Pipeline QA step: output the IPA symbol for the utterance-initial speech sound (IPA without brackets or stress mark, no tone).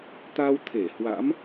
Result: t̪